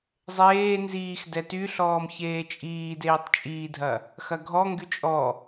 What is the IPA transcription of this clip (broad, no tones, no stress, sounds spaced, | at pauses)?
zˤ eː n z iː x d ɛ t y ɬ ɔː m ç eː t͡ʃʼ iː d eː tˤ t͡ʃʼ iː dʱ ɐ | x ɐ ɡʱ ɔ ŋ ɡ y t͡ʃʼ ɔ